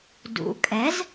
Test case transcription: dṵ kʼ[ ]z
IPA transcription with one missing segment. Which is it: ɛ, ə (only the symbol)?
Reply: ɛ